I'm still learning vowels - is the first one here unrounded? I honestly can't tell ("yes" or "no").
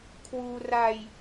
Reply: no